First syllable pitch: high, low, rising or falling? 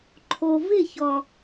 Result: low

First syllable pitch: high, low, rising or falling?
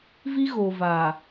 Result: high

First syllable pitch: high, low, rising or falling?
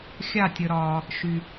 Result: falling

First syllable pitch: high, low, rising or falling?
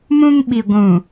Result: high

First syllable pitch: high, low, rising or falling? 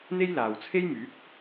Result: high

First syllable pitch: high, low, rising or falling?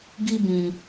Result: high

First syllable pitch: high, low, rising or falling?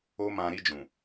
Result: high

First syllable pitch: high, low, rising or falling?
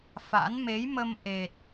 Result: rising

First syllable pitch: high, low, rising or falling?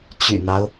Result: low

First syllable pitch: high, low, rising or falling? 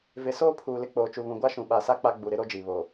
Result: rising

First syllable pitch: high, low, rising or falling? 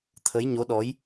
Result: rising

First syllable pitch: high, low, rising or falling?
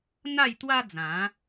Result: falling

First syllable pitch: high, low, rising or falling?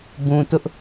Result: low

